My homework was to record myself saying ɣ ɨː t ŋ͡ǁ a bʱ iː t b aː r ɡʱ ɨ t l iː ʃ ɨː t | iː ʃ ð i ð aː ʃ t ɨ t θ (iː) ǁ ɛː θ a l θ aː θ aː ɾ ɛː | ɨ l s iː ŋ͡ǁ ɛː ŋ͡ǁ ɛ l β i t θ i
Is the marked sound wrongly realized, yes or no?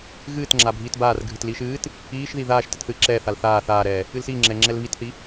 yes